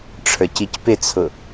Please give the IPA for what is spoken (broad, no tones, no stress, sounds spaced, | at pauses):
ʈ͡ʂʰ ə˞ c i c p ɪ t͡sʰ ʊ